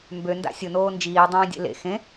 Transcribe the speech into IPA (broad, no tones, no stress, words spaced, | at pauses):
mbø nda̰sʲʊ noːnd͡ʒiː dˤẽːdʲḛlḛ xẽ